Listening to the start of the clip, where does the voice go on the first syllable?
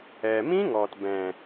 low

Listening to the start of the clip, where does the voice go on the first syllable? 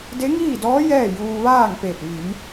rising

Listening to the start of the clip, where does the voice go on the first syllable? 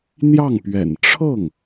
falling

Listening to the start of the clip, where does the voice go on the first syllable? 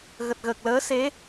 low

